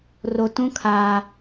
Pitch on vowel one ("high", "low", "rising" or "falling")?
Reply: low